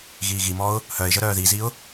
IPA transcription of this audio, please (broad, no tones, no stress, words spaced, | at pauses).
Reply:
ɣiːɣimɔʊ̯ | hœɪ̯ʒə ɾœːðiziʊ̯